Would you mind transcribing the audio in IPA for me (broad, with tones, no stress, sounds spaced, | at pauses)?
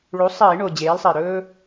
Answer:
ɭ u˩˥ sˤ iː˧˩˧ ɳ o˨˩ d͡ʑ eː˩˥ l sˤ i˨˩ ɾ ɵː˦